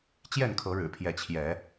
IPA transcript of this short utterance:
t͡ɕ j ɛ˥˨ n kʰ ɤ˨˦ ɻ ɻ̩˨˩ pʰ j ɛ˨˦ t͡ɕʰ j ɛ˨˦

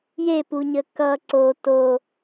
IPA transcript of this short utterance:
j e p u ɲ ə k ʌ ǀ o t o

